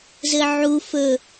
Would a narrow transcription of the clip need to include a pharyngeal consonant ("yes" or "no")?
yes